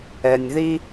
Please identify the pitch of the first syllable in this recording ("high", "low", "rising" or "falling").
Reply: low